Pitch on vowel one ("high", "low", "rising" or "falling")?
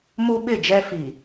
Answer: high